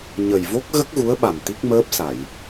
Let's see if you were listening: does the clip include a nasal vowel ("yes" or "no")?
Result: no